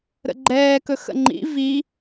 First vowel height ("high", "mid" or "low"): mid